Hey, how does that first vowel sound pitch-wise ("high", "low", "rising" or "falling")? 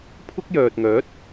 high